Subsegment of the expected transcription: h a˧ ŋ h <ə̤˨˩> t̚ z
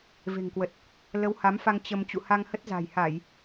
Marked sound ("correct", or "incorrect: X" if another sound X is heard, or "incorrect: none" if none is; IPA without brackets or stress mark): incorrect: ə˦˥